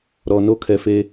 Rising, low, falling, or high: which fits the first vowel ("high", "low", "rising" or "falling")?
low